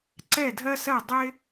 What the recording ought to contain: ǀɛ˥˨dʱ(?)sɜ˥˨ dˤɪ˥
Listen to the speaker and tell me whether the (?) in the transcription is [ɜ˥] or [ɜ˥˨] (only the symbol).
ɜ˥